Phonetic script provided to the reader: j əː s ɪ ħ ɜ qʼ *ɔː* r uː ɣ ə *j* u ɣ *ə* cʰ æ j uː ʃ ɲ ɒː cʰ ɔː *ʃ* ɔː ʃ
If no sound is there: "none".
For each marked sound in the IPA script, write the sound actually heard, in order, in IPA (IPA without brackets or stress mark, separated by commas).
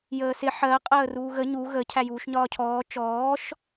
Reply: əː, ɲ, ə, t͡ʃ